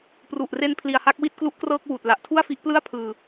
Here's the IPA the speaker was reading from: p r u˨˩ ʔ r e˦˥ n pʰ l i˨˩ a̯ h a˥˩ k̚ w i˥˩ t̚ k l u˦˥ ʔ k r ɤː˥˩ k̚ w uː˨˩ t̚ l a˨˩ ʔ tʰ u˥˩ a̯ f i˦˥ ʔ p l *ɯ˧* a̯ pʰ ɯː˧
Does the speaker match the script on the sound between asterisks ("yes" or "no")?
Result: no